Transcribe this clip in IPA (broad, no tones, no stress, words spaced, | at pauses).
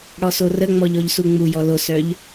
ɽɔsorəŋ͡mɔʎ ɔʎsuŋ͡mujɔ losœʎ